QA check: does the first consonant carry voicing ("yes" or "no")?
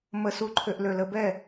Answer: yes